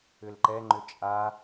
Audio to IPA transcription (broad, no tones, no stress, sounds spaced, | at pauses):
ʏ l ǃ ɛ ŋ͡ǃ ʏ t͡ʃʼ a